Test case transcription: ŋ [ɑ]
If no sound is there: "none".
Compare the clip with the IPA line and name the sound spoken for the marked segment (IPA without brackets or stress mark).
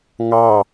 ɑ